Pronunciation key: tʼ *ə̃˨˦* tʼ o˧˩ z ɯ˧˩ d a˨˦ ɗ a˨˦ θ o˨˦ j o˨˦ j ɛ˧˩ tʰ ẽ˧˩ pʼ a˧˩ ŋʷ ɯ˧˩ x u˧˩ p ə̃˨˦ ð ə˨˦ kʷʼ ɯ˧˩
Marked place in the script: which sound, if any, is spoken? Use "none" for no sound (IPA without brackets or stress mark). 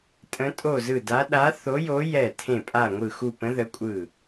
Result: ə̃˨˦